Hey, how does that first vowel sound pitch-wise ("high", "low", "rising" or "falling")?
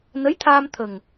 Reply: rising